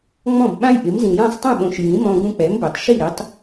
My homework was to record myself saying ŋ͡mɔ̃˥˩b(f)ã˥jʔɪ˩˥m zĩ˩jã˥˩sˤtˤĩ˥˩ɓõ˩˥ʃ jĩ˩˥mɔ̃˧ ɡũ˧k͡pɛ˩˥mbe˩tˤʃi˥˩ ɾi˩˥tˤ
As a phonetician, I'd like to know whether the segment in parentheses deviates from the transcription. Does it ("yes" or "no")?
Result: yes